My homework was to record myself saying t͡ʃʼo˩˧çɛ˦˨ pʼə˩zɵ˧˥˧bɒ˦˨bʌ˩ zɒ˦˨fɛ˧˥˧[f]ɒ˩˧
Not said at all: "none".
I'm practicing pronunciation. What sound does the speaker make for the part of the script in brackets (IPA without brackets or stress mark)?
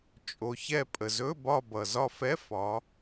f